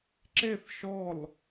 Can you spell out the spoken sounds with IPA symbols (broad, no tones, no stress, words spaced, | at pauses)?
ǁeθ ʃɔl